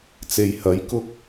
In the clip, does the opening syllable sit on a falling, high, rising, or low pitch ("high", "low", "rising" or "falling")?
low